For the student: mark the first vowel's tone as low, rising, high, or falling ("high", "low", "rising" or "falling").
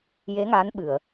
rising